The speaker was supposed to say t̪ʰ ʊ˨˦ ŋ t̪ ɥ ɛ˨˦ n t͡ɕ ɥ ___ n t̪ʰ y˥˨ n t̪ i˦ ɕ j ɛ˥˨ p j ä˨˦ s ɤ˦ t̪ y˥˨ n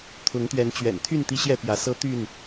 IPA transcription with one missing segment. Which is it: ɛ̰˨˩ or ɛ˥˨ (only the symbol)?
ɛ̰˨˩